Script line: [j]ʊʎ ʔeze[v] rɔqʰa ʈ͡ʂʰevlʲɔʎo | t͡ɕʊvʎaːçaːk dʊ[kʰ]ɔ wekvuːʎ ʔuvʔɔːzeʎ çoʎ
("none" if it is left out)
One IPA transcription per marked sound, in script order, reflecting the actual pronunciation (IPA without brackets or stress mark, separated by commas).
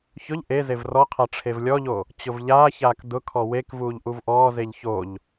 ç, v, kʰ